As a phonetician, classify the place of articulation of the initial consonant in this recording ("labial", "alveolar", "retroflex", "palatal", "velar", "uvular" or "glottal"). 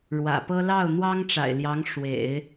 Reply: retroflex